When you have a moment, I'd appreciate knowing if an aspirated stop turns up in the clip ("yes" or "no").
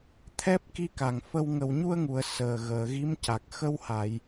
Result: yes